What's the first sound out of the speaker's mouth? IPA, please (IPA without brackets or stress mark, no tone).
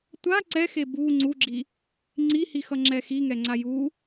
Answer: tʷ